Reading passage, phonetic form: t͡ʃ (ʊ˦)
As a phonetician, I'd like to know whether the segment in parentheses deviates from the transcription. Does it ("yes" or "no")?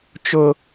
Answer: no